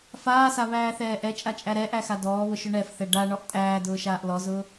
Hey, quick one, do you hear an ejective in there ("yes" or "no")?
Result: yes